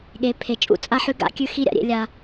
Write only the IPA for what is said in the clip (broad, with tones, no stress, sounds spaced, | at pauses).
ɠ e˨ pʰ e˨ t͡ʃʼ ṵ˦ t͡sʼ a˦ ħ ʉ˦ ɡ a̰˨˦ kʲ ʉ˦ x i˦ ɾʲ a̰˨ ɾʲ ḛ˦ lʲ a˦